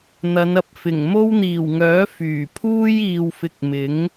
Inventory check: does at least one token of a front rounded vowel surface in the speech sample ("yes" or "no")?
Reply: yes